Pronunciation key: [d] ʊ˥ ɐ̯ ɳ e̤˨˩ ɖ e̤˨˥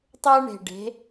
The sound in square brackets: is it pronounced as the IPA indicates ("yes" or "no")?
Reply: no